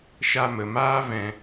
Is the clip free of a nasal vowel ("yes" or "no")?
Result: no